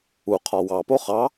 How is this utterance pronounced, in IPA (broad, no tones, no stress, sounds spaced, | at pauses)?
u qʰ ɒ w ɑ p o χ ɑ